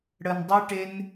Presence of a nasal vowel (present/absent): absent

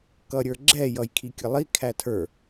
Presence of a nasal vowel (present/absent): absent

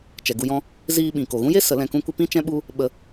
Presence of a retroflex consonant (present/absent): absent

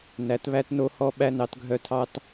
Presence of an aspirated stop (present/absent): present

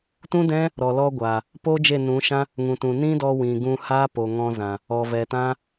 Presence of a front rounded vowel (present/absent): absent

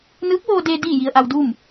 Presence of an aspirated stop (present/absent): absent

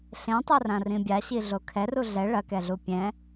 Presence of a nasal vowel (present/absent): present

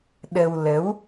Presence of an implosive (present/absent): present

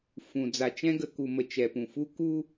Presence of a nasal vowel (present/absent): present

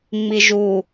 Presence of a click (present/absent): absent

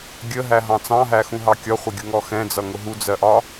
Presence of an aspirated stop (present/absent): absent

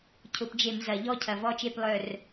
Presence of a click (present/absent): absent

